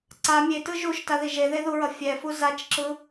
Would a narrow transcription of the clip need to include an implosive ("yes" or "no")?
no